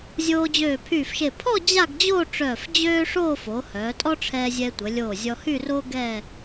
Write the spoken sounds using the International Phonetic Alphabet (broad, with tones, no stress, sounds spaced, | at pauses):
zʲ oː˧ d͡ʑ øː˧˩ pʰ yː˧˩ f ʃ e˧˩ pʰ ɔ˥˧ d͡ʑ a˥˧ ɡ d͡ʑ oː˥˧ ʈ͡ʂ œː˧˩ f d͡ʑ øː˥ ʂ oː˥˧ f o˩˧ h œː˩˧ tʼ ɔ˥ ʈ͡ʂʰ ɛː˧ zʲ ɛ˧ tʷ ə˩˧ lʲ oː˧˩ zʲ ɔ˧ h y˥˧ r oː˥ ɡ ɛ˥˧